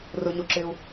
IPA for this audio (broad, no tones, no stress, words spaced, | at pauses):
rʊɲoǁɪːu̯